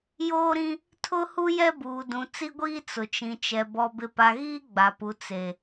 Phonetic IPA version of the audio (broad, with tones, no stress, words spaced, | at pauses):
joː˦ɾĩ˦ | tʰʊ˦hu˦ jɛ˦buː˨dũ˨ t͡si˦ɡʷiː˦ t͡sʊ˨t͡ʃĩ˨t͡ʃɛ˨ bɔ˨ bɪ˨pa˨ɣiː˦ ɡ͡ba˨pu˨ t͡se˨